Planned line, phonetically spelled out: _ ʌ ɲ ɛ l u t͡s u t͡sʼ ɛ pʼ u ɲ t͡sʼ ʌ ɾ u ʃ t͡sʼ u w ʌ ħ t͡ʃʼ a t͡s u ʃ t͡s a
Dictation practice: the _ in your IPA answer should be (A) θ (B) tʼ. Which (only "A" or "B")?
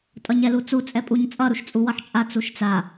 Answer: B